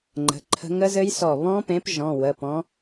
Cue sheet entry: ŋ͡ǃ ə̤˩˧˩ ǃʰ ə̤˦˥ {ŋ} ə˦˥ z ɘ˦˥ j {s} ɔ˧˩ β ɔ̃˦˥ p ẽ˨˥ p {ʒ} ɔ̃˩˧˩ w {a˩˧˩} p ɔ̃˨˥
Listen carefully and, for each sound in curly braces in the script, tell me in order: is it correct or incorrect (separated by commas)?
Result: correct, correct, correct, incorrect